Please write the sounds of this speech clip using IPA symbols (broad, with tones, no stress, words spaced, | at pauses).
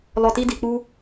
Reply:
lɔ˨ti˧di˨ k͡pu˧